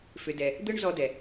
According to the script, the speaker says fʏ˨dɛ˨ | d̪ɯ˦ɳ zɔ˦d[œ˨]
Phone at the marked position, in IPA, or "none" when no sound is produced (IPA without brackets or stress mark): ɛ˨